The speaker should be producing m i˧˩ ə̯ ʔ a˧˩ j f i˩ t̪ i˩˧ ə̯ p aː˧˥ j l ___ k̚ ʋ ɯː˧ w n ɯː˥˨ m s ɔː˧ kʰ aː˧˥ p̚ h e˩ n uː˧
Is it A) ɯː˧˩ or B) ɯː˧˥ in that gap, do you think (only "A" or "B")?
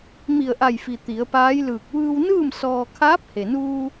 A